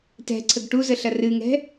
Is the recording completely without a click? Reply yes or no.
no